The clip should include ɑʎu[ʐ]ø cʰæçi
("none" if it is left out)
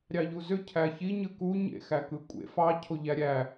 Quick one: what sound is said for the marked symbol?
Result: z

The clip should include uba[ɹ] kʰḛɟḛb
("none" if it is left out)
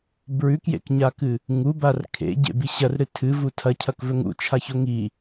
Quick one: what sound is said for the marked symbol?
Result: r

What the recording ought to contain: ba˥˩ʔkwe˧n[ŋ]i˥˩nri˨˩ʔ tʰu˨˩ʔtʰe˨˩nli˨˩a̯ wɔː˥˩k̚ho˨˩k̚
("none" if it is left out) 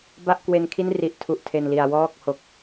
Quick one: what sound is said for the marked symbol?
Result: kʰ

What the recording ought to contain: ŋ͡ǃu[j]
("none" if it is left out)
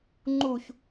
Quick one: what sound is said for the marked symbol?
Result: ç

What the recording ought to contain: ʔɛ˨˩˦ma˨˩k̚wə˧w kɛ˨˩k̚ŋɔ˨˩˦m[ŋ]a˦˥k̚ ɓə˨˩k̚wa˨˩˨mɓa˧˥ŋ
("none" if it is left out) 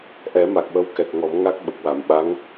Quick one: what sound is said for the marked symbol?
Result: ŋ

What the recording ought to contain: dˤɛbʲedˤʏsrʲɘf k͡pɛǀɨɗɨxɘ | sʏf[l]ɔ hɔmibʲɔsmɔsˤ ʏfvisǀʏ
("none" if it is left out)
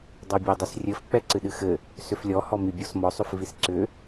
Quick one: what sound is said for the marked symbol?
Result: lʲ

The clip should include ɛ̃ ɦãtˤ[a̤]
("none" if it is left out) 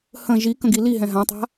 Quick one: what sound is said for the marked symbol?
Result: a̤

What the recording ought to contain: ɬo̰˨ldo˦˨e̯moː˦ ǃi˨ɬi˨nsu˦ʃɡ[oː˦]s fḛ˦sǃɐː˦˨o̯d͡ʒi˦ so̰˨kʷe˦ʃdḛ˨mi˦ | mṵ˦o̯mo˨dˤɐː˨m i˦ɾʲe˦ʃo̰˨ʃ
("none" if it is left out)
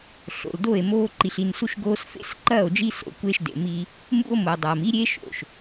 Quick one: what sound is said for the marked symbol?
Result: oː˦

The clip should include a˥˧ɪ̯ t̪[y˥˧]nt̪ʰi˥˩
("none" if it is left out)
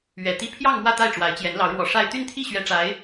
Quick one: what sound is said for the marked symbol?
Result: y˥˧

